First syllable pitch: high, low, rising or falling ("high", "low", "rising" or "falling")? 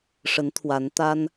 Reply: rising